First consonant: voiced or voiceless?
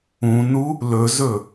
voiced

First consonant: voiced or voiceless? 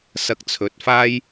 voiceless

